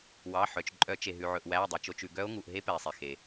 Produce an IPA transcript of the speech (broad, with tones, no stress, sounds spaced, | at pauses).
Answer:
w ɑ˩˧˩ ħ œ˩ t͡ʃ ǃʼ œ˨˩˦ t͡ʃ e˩ ɦ ʉ˩ ʕ ɵ˩ ʔ w æ˩˧˩ o̯ dˤ e˩ t͡ʃ o˩˧˩ t͡ʃ ʉ˩ ɡ œ˧˥ o̯ ŋ u˩˧˩ ʔ ɦ e˧˥ p ɛ˩ e̯ sˤ e˩ x e˩